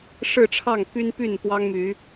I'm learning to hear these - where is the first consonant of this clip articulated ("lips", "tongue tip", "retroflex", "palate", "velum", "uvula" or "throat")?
retroflex